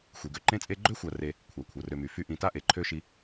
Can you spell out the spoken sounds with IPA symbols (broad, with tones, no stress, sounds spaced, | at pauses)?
xʷ i˩ ɡ ø˦ ǃ ẽ˦ t͡sʼ e˦ ɡ͡ǃ ø˥ xʷ a˨ r e˨ | kʷʰ a˩ kʷʰ ɤ˩ r ø˨ m y˩ f y˦ ʔ ĩ˨ t a˥ ʔ e˩ ǃʰ ø˥ ʃ i˦